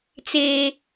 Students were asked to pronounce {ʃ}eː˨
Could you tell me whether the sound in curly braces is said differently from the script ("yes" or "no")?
yes